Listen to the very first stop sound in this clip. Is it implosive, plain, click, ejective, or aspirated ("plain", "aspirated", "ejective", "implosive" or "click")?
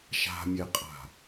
ejective